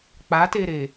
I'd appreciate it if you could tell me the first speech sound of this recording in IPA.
k͡p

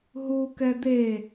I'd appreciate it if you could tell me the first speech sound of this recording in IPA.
ɦ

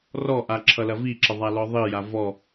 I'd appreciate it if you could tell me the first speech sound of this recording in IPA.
r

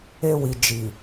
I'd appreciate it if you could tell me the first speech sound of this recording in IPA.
e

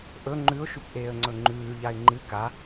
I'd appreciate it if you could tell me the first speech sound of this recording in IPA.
ʔ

